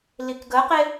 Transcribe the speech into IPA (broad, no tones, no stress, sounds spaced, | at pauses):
l i k ɡ ə q e